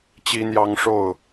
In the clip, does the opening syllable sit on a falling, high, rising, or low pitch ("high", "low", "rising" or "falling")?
high